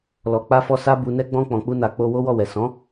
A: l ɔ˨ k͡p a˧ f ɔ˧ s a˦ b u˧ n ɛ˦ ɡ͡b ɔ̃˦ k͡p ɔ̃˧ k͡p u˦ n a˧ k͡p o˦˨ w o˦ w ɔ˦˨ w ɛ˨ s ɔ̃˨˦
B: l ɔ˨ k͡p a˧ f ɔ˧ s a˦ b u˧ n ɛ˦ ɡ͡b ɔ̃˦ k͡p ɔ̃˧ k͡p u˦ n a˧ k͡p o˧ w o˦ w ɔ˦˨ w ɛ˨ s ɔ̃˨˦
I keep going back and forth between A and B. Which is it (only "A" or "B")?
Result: B